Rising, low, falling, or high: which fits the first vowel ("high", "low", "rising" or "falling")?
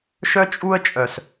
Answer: high